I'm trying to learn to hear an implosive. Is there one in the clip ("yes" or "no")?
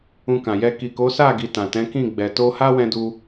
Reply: no